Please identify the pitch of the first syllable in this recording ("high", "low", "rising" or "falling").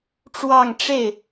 falling